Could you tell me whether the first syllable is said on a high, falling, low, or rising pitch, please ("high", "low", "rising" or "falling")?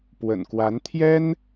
low